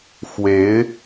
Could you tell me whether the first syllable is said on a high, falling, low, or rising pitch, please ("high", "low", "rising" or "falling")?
rising